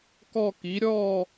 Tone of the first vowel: falling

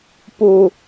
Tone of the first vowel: high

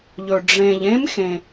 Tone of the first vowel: low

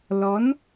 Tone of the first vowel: rising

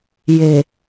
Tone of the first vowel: low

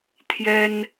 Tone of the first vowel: high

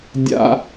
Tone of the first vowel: high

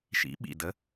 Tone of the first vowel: rising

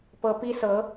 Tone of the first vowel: rising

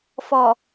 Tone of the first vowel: low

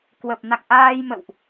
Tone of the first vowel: low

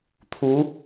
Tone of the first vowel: rising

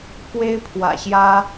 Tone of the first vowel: high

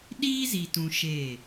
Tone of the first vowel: high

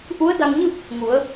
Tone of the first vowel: rising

